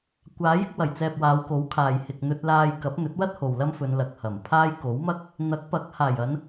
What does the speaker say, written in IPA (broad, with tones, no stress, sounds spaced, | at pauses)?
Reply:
kʷ aː˨˥ j ɪ˧ k̚ w ɐ˨˩ j t͡s ɛː˨ p̚ w aː˨˧ w k o˨˥ w kʰ aː˨ j h ɪ˨ k̚ n̪ ɵ˧ t̚ l aː˧ j k ɐ˨˥ p̚ n̪ ɵ˨˥ t̚ w ɐ˥ t̚ h o˨ w l ɐ˥ m f ɵ˨˧ n l ɐ˨ k̚ h ɐ˨˩ m pʰ aː˥ j k o˨˥ w m ɐ˥ k̚ | n̪ ɐ˨˥ k̚ p ɐ˨˥ k̚ h aː˨˩ j ɐ˨˧ n